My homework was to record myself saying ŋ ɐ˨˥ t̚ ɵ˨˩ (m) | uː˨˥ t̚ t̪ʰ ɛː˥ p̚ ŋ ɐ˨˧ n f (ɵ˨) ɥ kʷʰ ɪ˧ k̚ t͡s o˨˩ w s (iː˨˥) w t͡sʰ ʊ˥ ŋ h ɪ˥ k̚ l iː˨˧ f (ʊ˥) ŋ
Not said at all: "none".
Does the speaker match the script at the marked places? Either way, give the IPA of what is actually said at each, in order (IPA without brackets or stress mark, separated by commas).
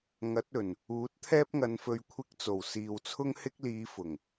n, ɵ˨, iː˨, ʊ˨˩